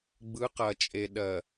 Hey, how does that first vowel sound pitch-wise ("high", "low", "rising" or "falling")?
rising